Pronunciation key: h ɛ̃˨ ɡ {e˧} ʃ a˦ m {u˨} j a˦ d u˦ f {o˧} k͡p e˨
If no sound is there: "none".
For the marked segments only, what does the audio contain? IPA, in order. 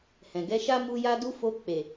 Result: ɛ˧, u˦, o˧

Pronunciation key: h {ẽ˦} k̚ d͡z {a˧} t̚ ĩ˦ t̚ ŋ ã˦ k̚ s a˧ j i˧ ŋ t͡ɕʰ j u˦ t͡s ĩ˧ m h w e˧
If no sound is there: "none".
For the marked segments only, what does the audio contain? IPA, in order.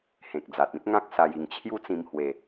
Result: ẽ˨, a˨

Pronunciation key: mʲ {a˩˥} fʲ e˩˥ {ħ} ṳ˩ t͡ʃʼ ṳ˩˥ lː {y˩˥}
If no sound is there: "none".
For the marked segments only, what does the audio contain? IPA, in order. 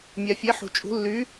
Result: a˩, ħ, y˩˥

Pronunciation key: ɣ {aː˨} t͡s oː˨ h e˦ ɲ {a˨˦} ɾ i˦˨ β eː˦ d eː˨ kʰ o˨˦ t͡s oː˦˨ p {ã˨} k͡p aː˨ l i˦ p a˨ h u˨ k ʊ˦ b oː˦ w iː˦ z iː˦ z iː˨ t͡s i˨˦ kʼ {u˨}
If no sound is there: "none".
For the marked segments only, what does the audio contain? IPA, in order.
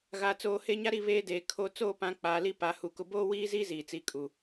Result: aː˨, a˦, ã˨˦, u˨

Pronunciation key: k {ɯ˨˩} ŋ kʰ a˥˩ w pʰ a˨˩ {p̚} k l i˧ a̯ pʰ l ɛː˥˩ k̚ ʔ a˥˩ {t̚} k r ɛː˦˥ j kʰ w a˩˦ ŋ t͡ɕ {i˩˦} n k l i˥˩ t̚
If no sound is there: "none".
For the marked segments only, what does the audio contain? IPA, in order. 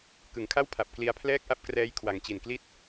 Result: ɯ˨˩, p̚, p̚, i˨˩

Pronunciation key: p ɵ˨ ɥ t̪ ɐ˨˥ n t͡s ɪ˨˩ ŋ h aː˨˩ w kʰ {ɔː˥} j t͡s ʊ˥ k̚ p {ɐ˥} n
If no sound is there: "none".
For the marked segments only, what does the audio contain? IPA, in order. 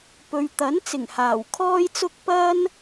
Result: ɔː˥, ɐ˥

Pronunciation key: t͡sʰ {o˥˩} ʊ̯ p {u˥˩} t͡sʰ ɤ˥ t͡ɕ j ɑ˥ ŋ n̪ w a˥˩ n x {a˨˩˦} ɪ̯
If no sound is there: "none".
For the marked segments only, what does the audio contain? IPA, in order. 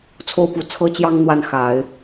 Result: o˥˩, u˧˥, a˨˩˦

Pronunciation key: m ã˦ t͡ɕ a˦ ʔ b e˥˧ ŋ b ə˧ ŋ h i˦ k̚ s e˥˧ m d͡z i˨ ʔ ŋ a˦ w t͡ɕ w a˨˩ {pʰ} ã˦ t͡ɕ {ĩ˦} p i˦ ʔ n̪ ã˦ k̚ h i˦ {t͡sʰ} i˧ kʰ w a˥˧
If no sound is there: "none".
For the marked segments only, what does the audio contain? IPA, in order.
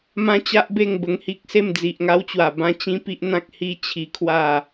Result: b, ĩ˦, t͡ɕʰ

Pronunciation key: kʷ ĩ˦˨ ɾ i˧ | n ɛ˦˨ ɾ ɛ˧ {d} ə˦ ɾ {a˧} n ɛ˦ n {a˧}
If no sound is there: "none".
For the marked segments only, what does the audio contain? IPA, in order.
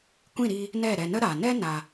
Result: n, a˨, a˧

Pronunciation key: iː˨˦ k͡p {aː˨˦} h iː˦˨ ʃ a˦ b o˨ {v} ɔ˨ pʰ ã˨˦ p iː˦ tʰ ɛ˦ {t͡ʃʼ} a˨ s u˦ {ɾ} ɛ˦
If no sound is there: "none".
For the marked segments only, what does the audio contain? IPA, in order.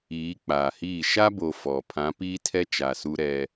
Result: aː˨, f, t͡ʃ, ɾ

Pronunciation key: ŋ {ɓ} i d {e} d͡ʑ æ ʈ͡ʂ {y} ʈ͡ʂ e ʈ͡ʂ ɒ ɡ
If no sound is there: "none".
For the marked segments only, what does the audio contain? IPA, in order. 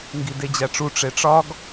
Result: ɡ, e, u

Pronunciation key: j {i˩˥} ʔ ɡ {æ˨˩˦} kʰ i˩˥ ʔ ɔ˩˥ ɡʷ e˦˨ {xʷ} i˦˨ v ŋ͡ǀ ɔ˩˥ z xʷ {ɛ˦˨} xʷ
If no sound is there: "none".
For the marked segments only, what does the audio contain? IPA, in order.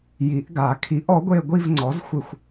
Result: i˨˩˦, a˨˩˦, ɡʷ, ɪ˦˨

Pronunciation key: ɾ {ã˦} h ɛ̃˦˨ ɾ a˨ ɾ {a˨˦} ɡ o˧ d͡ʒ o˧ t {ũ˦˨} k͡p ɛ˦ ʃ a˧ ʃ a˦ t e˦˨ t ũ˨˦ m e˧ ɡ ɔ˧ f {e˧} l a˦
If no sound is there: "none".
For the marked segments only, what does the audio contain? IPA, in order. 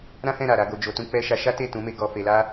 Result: ã˦, a˨˦, ũ˦, e˧

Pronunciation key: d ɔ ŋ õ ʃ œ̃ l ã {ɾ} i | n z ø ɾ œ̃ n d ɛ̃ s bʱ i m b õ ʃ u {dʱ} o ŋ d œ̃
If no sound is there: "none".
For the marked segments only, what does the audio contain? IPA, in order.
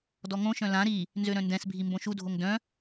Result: ɾ, dʱ

